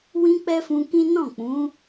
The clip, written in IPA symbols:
w ĩ˦ k͡p ɛ˦ f ũ˧ k ĩ˦ n ɔ̃˦˨ k͡p ũ˨˦

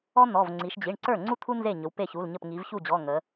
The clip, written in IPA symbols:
ɔ˥ n̪ ɔ˩˧˩ v ŋ͡ǀ i˩˧ ʃ d͡ʑ i˩˧˩ ɳ ǀ ə˞˥˩ ŋ͡ǀ u˥ t̪ʰ u˥ n z e˥˩ ɲ ɵ˩˧ w p e˥˩ ç u˩˧˩ l ɲ ə˥˩ p ŋ i˩˧ v ç u˥˩ d͡ʑ ɔ˩˧˩ ŋ ə˩˧

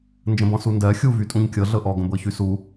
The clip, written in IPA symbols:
n d͡ʒ ə̃ b ɔ̃ s u n d ɜ xʲ u v y tʼ ũ ɲ kʲ ɤ ɮ ɤ ʔ ɔ ɡ ə̃ b ɤ ç y s u

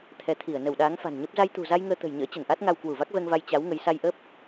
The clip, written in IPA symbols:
t̪ʰ ɛ˨˦ t̪ʰ i˧˩ ə̯ n ə˧˩ w ɗ aː˨˦ ŋ f a̤˨˩ n ɲ ə˦˥ p̚ z a˧ j t̪ ṳ˨˩ z a˧ j ŋ əː˧ t̪ ə̤˨˩ j ɲ ə̰ː˧˥ t͡ɕ ə˧˩ n ʔ a˦˥ t̚ ŋ a˧ w k w u˧˩ v a˦˥ k̚ v ɛ˧ ŋ v a˧ j t͡ɕ a˨˦ w ŋ ə˨˦ j s a˧ j ʔ ə˦˥ p̚

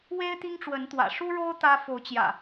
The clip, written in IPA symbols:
w e˦ ɪ̯ t̪ i˦ ŋ ʈ͡ʂ w ə˨˦ n t̪ w ä̰˨˩ ʂ u˦ ɻ o˦ ʊ̯ t̪ ä˦ f o˨˦ ʊ̯ t͡ɕ j ä̰˨˩

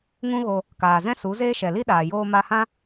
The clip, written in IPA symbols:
ŋ ũ˦ ɣ o˧ | k aː˨ z ɛ̃˦ s u˨˦ z eː˦ ʃ ɛ˨ l i˦ ɗ aː˨ j oː˧ m a˧ h ã˦

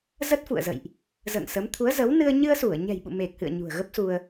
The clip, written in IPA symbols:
z ə˦˥ t̚ f ṵ˧˨ ə̯ z ə̰˧˨ j ʔ | z ə̰ː˧˨ ŋ s ə˨˦ m t̪ʰ u˨˦ ə̯ z ə˨˦ w n ɨ˧ ə̯ ɲ ɨ˧ ə̯ s u˧˩ ə̯ ɲ ɛ̤˨˩ j ɓ ṵ˧˨ m e˨˩ k̚ h ɨ̰˧˨ ə̯ ɲ ṳ˨˩ ə̯ ɣ ə˦˥ p̚ s u˧ ə̯

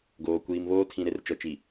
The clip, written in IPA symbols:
ɡ oː˨ kʷ iː˨ m β oː˦ tʰ ĩ˨ ɾ e˦ r t͡ʃ ɔ˨ t͡ʃ i˨

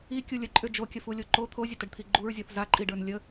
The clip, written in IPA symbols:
i kʲ u lʲ ə ǃʼ ʏ d͡ʒ o kʲ ə f u lʲ o ǃ o t̪ʰ o zʲ ə t ə ɖ t̪ʰ i ɡ͡ǃ u ɹ zʲ ɔ θ z a ǃʼ i ɖ ə˞ n lʲ ə

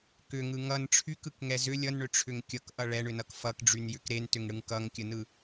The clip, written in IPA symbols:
k ʏ ŋ ɯ ŋ ʌ n ʈ͡ʂʰ y k ɯ k ŋ ɛ z ʏ lʲ ʌ n ɳ ʏ ʈ͡ʂʰ ʏ ŋ kʲ ʌ k ʔ ʌ ɭ ɛ ɳ ʏ n ʌ k f ʌ k ɖ͡ʐ y n j ʏ k ɾ e n t ʏ ŋ ɽ ɯ ŋ k ʌ ŋ kʲ ə n ɯ

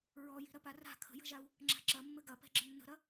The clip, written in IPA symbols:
ɹ ɔ j i̤ ɾ ɐ p a r a̤ kʰ ə̤ j ə̤ ʒ a u̯ | ŋ͡ǁ a̤ ǁ ɐ mː ɘ ɡ ɐ p ɛ̤ ɡ͡ǁ ə nː ə̤ ɾ ɐ

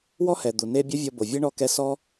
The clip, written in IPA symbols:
w ɔ˦ h ɛ˨ d̪ u˨ n e˦ bʲ ɐ˦ vʲ ɔ˧ b o˨ vʲ e˦ ɳ ɔ˧ k ɛ˧ s ɔ˦

